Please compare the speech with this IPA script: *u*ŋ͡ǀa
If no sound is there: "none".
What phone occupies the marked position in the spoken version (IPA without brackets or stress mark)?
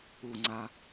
u